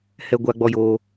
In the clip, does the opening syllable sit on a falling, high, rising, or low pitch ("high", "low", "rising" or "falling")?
high